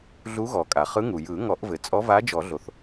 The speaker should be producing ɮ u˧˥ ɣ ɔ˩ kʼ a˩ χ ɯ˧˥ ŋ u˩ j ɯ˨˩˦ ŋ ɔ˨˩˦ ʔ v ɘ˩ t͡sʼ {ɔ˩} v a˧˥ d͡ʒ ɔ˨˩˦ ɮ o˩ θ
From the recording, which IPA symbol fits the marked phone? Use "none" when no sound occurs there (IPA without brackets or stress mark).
ɔ˧˥